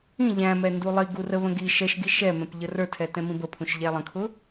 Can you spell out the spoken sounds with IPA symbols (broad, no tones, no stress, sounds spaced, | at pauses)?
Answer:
ĩ ʎ æ̃ m ɛ n d u lˠ i ɡ u r ə β ə̃ ɡ i ʃ ɛ ʃ ɡ i ʃ ɛ m ɛ̃ p ʎ ə r ə˞ tʰ ɛ t ɛ̃ m ĩ b ə pʰ ũ ʃ ʎ æ lˠ ə̃ kʰ ʊ